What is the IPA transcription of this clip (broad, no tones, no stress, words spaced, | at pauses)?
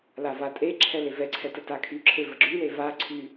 lavatʼeǁʰɛ levɛǀʰɛ tətakʰyǁʰe vəɡ͡ǁyle vaǀʰy